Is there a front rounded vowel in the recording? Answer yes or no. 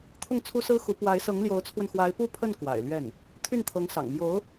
yes